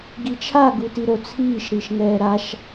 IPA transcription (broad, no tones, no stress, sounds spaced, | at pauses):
ɡ i t͡ʃʰ a ɡ u t i ɾ o t͡sʰ iː ʃ ɾ i ʃ ŋ ɛː ɾ a ʃ